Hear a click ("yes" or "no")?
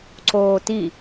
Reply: yes